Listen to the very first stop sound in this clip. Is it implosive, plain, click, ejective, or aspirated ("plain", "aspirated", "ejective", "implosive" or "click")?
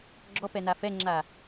click